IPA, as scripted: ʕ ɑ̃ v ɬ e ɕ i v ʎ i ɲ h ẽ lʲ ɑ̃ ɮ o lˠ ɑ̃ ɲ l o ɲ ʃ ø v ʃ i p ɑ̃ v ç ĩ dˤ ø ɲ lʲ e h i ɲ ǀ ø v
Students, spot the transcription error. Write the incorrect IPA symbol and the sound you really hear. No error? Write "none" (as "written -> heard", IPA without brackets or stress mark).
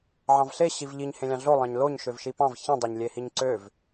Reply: none